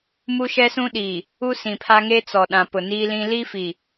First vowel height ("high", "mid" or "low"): high